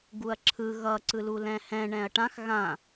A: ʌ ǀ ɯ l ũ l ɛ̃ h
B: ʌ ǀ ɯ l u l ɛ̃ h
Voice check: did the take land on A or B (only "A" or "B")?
B